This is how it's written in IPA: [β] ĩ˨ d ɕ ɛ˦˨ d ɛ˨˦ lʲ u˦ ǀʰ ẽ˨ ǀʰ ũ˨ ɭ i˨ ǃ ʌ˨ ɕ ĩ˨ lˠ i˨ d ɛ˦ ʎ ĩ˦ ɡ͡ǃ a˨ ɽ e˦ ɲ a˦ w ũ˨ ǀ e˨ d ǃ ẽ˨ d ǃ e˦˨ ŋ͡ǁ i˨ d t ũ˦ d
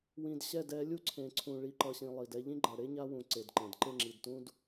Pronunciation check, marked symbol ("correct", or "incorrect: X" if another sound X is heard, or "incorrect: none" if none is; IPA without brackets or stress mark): incorrect: w